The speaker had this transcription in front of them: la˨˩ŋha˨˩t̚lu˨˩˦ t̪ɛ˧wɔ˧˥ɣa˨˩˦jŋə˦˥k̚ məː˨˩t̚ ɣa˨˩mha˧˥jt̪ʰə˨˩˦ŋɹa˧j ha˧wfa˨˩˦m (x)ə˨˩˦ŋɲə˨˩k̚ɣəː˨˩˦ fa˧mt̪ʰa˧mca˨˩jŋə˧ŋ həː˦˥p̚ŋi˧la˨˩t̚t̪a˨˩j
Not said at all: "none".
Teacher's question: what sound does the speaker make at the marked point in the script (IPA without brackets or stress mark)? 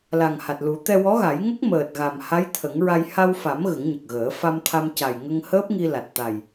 ɣ